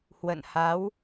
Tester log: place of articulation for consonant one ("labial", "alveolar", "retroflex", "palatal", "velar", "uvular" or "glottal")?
glottal